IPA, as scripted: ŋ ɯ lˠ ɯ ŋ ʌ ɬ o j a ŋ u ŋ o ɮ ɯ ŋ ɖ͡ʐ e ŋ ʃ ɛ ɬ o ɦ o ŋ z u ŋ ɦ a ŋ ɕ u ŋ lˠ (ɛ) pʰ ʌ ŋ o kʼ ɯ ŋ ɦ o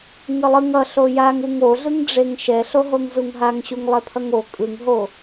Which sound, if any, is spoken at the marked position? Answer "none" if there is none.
ɛ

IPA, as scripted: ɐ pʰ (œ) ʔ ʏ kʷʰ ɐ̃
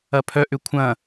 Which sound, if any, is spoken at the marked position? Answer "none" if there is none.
œ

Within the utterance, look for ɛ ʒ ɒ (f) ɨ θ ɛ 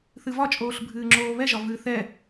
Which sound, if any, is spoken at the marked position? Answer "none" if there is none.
v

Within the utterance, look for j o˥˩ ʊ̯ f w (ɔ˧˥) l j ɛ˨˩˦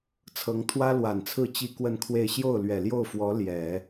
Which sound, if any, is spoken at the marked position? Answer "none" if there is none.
ɔ˧˥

